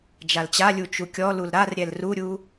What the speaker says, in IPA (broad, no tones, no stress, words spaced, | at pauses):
d͡ʒalt͡ɕalʲu t͡ʃukʲɔlul ɾarɾʲɛl ruɾʲu